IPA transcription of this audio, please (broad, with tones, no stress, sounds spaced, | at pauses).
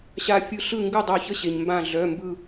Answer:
ɕ a˧ fʲ ɯ˧ ɬ ɯ˥˨ ŋ ɡ ʉ˥˨ dˤ œ˧˩ ç ə˥˨ ɕ e˩ ɲ m b ã˧˩ ɮ œ˩˧˩ m b ɯ˧˩